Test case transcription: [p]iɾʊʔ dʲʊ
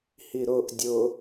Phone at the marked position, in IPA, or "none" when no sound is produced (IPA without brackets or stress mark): h